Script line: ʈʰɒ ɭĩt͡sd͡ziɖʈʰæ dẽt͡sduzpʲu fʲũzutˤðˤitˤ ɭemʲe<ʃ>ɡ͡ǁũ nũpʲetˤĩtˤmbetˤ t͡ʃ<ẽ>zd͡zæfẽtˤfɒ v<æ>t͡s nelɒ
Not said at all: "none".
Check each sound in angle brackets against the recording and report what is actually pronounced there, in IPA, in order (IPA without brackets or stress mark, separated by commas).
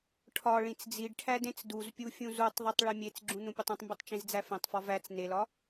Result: t͡s, ĩ, æ